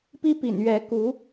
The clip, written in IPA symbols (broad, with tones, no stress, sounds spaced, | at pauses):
p i˥ p ḭ˨˩ n ɥ ɛ˧˥ k u˧˥